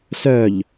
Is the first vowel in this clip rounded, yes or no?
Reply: yes